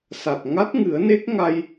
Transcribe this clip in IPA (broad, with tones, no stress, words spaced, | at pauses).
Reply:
sa˨˩t̚ ŋa˦˥t̚ŋɨ˨˩˦ə̯ne˦˥k̚ ŋa˧j